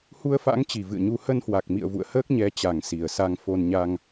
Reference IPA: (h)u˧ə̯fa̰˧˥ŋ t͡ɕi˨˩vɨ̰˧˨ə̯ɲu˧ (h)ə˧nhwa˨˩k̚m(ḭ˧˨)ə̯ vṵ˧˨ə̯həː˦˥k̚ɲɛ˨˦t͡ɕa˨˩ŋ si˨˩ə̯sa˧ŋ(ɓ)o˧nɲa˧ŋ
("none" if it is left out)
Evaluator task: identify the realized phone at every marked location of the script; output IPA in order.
h, h, ḭ˧˨, f

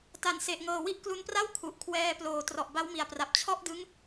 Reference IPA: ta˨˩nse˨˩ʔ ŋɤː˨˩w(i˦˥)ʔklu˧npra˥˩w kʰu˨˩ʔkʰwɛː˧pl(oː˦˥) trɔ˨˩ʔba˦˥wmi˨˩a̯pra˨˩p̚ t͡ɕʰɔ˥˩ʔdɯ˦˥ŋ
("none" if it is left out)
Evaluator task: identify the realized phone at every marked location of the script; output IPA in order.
i˦˥, oː˨˩

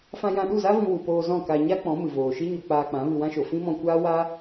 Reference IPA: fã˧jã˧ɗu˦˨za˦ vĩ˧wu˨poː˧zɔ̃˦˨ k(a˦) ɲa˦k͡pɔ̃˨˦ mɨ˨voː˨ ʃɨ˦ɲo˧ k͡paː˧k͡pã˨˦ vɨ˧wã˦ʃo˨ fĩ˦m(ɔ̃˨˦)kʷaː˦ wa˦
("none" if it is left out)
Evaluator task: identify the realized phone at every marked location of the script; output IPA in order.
a˧, ɔ̃˧

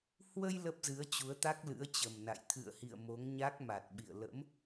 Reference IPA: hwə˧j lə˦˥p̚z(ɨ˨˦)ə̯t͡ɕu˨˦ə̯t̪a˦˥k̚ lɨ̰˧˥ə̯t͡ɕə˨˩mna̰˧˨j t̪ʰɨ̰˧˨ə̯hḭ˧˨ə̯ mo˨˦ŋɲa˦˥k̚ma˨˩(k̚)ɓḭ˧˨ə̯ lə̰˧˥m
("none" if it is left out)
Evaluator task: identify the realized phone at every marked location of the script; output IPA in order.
ɨ˨˦, t̚

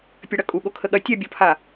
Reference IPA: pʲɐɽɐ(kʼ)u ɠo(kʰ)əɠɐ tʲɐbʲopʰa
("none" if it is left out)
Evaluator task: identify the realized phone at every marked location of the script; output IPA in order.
kʼ, kʰ

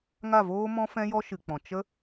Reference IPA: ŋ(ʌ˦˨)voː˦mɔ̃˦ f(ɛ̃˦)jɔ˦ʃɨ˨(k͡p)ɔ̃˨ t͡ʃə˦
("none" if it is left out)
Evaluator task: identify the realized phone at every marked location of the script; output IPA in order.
a˦˨, ɛ̃˦, k͡p

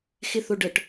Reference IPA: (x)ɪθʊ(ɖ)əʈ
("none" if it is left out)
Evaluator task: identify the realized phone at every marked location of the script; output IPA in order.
x, ɖ

